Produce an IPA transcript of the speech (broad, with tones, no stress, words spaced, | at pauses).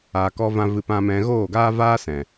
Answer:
aː˨kɔ˧vã˧ vɨ˧ pã˧mɛ̃˧ ɣoː˦˨ɡaː˦ vaː˦sɛ̃˨